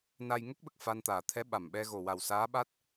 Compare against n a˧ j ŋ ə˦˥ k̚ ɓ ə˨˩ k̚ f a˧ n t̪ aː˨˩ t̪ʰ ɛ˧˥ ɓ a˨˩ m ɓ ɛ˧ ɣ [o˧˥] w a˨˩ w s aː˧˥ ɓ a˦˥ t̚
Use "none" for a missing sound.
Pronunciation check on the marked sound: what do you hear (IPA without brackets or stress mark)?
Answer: o˨˩